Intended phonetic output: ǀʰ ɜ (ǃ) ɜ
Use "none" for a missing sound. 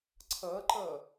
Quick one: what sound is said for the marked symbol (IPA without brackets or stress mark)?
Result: ǃ